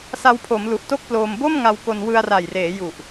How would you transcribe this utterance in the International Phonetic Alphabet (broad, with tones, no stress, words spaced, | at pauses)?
sa˧wpʰo˩˦mlu˨˩ʔ to˥˩k̚ploː˧m bo˥˩m ŋa˧wko˧n wɯ˧a̯ra˨˩jreː˩˦ ju˨˩ʔ